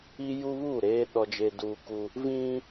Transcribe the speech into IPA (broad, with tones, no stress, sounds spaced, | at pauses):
i˦ j u˦ β uː˦˨ ɾ eː˦ ɗ ɔ˦ d͡ʒ e˦ d uː˦ k u˦ | v ĩ˦